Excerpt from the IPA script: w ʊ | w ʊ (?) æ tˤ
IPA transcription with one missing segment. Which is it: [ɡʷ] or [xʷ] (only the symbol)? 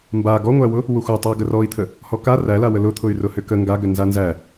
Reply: xʷ